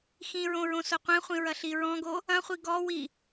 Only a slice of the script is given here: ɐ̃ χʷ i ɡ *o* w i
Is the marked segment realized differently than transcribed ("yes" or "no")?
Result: yes